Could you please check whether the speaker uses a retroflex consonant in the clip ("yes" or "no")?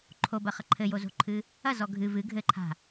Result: no